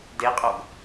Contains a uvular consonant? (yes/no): yes